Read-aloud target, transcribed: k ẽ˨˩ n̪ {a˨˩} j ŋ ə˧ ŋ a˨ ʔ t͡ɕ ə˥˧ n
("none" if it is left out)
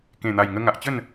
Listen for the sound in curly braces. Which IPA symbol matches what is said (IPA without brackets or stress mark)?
a˨˩